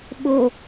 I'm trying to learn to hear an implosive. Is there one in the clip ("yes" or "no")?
yes